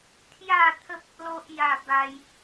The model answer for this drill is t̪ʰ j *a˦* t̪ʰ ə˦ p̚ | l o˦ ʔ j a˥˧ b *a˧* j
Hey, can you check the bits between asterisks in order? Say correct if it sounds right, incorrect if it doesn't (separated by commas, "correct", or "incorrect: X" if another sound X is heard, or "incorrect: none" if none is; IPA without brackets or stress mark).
incorrect: a˥˧, incorrect: a˦